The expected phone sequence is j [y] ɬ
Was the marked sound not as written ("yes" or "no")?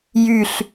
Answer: no